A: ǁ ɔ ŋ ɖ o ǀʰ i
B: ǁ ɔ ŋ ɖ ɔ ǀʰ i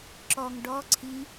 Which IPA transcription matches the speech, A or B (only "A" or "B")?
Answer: B